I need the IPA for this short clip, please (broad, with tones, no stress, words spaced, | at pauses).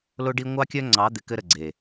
lo˦ɖi˦ ŋʷɑ˦kʲœ˦ ŋ͡ǀɑ˨˦d̪ɪ˨ kɘ˦ɾə˨ ɡ͡ǀe˨